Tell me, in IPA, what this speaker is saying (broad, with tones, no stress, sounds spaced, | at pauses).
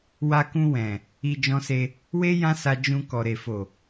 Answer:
w a˧ k ũ˧ w ɛ̃˨ | i˧ d͡ʒ ɔ̃˧ s e˧ | w e˦ j ã˦ s a˧ d͡ʒ ũ˧ k ɔ˨ ɾ e˨ f o˨